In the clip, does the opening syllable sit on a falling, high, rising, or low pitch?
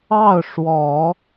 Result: falling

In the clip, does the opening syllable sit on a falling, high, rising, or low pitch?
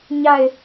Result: falling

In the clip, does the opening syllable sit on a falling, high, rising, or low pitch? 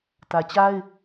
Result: low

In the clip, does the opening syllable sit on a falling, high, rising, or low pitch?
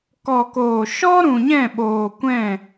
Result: low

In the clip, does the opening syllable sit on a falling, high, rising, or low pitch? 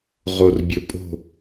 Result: low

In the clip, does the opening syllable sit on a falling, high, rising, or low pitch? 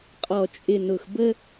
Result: low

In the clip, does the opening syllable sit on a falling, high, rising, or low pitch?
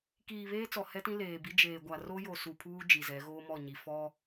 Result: low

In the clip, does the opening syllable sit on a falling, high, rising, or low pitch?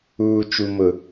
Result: low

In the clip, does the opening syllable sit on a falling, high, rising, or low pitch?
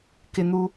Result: high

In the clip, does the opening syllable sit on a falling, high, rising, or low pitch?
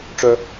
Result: high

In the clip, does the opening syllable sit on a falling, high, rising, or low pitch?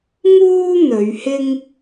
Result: high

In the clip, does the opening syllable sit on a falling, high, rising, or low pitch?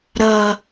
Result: low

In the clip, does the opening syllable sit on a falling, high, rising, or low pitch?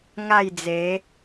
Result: falling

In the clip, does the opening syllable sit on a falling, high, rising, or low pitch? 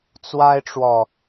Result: high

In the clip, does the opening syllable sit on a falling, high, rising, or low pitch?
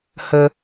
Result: high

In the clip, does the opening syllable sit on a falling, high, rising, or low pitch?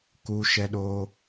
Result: high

